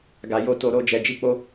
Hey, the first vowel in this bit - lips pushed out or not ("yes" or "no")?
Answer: no